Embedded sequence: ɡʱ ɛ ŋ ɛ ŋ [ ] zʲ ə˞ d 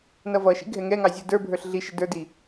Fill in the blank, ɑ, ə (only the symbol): ɑ